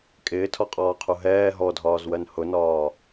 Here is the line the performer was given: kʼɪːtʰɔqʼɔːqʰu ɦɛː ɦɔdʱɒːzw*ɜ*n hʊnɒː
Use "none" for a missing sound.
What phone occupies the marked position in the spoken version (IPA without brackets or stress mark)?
ɜ